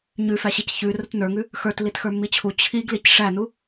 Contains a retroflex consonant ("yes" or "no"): yes